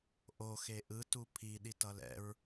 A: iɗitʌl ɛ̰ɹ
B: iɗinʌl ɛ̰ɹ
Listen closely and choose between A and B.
A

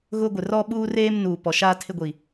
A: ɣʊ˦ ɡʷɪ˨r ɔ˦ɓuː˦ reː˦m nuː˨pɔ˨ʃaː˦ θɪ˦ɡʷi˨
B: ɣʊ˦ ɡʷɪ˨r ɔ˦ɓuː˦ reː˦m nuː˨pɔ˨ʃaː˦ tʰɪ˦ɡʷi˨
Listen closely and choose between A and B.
B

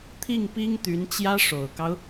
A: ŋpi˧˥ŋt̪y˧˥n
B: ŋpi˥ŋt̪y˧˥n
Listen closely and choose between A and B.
B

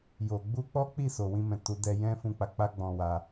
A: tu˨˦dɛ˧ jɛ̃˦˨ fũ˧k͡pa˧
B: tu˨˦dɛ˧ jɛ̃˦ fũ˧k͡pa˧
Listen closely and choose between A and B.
B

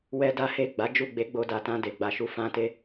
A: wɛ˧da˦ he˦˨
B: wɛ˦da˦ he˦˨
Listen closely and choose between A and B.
B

